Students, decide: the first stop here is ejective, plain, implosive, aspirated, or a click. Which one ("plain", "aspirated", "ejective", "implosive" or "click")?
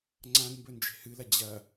click